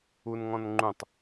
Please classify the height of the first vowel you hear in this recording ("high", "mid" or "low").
high